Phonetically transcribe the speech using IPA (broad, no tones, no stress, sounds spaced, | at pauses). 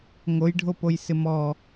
ŋ o j ɖʱ o p o j s ɪ m ɔ